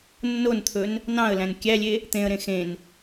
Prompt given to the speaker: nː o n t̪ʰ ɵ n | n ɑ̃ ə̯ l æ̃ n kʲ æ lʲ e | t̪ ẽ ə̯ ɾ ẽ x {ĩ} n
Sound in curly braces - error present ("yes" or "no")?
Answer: yes